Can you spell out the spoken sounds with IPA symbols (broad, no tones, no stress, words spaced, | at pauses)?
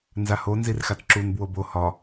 nzaho nzirxatǁun bwobo hɒ